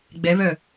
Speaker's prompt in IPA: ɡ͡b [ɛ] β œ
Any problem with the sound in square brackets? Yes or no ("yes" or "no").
no